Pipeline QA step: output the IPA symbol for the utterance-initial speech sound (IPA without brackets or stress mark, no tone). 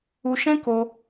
u